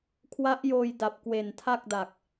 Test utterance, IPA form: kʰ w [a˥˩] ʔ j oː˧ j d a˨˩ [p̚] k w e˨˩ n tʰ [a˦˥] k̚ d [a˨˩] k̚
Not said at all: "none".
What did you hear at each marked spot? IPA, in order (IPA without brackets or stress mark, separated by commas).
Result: a˦˥, p̚, a˥˩, a˨˩